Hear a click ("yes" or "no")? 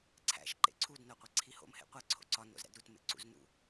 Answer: yes